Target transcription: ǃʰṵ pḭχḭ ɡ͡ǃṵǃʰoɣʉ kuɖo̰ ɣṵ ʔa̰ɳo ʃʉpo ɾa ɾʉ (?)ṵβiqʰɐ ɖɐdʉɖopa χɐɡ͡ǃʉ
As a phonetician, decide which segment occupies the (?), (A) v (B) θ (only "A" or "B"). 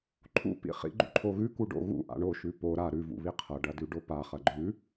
A